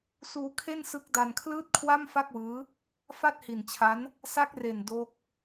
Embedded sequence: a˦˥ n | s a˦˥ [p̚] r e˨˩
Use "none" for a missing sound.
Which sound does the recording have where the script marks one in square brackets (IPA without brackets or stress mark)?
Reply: k̚